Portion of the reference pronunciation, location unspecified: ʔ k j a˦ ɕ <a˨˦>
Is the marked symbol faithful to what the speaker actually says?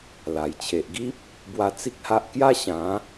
no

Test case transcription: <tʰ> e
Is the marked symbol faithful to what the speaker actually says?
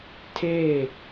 yes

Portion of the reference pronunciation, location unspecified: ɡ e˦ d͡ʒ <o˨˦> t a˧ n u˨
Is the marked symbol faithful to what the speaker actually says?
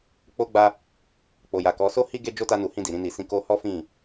no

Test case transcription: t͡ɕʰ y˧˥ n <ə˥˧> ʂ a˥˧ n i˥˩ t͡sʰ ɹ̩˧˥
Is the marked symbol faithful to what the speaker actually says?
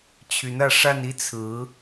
no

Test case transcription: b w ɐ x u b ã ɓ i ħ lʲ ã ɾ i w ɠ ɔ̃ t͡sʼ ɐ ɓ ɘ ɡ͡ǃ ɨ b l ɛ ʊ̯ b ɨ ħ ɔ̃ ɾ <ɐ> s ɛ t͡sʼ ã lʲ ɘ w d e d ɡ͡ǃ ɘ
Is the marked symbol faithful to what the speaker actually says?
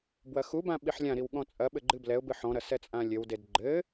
yes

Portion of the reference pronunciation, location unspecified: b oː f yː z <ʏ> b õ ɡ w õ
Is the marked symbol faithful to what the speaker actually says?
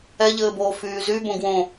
no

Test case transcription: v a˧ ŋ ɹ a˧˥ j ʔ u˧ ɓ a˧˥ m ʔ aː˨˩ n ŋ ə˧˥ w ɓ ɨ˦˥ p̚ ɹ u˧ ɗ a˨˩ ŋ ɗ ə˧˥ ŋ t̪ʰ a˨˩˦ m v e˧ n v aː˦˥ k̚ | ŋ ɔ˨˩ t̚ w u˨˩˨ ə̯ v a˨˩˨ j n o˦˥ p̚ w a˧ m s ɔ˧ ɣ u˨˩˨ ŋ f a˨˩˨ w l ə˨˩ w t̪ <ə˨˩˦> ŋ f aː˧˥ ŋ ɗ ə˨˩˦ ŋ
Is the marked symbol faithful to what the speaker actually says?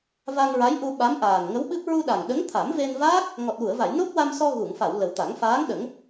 no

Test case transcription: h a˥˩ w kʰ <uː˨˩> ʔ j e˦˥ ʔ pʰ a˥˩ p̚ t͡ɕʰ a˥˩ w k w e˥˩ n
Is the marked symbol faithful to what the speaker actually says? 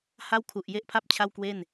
no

